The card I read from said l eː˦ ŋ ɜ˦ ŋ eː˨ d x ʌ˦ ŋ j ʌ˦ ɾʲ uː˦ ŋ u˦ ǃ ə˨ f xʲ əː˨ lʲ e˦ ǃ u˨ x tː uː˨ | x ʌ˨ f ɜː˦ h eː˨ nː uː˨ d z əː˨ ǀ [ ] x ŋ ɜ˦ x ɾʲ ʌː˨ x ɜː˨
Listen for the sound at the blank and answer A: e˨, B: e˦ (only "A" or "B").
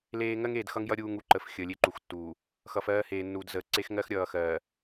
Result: B